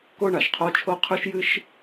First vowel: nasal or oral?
oral